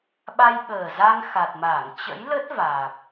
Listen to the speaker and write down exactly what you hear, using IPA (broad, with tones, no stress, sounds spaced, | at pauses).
ɓ a˧ j ɓ əː˨˩ z a˧ ŋ x a˨˩ t̚ m aː˧˩ ŋ t͡ɕ ə̰˧˥ j l ə˦˥ t̚ v aː˨˩ p̚